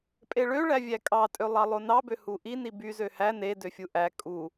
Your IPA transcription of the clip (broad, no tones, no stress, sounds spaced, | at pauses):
pʼ e ɭ ø ɭ æ vʲ æ kʼ ɑ tʼ ø lˠ ɑ lˠ o n ɑ b ø h u ʔ i n i b y z ø h æ n e d ø fʲ u ʔ æ kʼ u